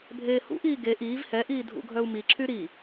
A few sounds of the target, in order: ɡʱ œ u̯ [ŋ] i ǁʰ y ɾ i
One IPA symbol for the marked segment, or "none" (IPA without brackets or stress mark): m